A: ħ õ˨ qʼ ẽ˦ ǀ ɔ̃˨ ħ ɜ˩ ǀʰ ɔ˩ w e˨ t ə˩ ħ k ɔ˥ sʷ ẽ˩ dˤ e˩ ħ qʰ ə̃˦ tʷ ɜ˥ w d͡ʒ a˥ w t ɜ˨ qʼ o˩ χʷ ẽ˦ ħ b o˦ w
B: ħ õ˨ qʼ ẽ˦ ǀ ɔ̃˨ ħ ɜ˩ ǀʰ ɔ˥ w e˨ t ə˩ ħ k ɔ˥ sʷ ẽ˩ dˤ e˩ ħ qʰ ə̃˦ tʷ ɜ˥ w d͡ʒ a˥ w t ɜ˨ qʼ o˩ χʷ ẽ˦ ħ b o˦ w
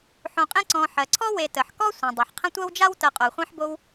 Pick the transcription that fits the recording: B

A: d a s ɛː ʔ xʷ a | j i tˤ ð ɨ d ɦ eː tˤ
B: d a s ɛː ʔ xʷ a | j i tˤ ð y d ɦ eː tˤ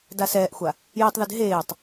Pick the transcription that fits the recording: A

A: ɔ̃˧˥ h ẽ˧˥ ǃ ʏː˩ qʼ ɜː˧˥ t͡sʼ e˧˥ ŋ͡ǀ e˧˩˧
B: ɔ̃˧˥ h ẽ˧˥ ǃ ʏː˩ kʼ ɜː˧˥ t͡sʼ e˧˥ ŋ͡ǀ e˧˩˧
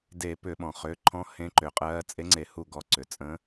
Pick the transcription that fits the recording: A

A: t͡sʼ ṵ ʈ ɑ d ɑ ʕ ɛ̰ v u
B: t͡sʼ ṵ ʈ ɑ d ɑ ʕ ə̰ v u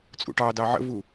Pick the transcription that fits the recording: B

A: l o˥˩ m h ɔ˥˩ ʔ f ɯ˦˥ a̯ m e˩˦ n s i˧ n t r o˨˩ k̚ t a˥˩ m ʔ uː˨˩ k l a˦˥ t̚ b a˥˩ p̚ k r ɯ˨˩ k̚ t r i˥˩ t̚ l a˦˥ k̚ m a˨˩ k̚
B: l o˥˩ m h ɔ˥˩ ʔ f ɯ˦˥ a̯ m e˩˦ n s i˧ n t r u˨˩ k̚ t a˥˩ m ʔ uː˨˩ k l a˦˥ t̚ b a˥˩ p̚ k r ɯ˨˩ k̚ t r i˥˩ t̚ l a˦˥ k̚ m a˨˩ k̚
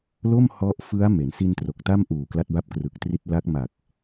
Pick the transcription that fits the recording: A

